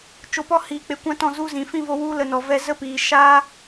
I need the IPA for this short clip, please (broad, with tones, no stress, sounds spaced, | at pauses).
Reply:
t͡ʃ o˧ p ɔ˦ h iː˧ k͡p e˧ kʷ ã˦ t ɔ̃˦˨ z u˧ z ĩ˨ f ĩ˦˨ v o˧ w u˦ l ə˧ n ɔ˨ v ɛ˧ z ə˦ p iː˨ ʃ a˦